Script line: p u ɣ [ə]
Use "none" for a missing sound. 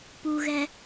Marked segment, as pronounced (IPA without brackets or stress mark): ɛ